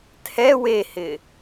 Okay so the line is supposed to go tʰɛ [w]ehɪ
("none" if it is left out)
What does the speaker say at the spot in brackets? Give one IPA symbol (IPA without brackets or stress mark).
w